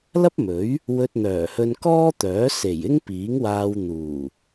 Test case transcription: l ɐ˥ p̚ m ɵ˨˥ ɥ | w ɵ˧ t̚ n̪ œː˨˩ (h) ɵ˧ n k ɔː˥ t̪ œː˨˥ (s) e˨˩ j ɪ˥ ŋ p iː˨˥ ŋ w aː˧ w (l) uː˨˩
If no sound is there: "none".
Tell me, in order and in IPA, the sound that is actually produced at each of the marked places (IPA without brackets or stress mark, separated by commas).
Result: h, s, n̪